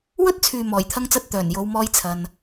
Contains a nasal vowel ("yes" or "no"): no